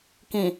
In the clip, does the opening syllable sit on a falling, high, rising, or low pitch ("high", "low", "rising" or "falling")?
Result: low